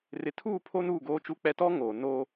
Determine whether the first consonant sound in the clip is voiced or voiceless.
voiced